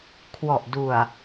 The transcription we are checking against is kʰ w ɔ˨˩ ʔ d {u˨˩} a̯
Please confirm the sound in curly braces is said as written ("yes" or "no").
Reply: yes